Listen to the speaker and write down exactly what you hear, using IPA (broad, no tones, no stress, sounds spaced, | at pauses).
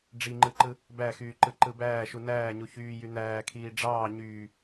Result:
ɖ͡ʐ i ŋ͡ǃ ɯ ǃ ɯ | b æ x yː ǃ ɯ ǃ ɯ b æː ʃ u n æː ɲ u ç yː j y n̪ æː kʰ iː ɖ͡ʐ ɑː ɲ yː